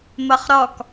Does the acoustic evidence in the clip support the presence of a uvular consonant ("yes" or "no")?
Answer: yes